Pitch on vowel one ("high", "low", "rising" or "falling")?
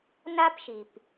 high